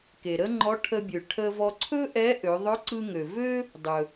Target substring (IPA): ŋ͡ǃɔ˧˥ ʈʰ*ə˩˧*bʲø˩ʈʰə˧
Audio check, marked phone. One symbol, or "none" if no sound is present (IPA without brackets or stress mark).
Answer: ə˧